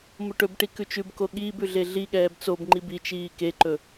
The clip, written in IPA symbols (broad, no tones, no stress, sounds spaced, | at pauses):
m o ʈ ɵ b ʈ i k ʉ t͡ʃ ʉ b k o ɠ iː b ʉ ɮ e ɮ i ɠ ɛː b t͡s o b ŋ͡ǃ i b i t͡ʃ iː k e ǃ ɵ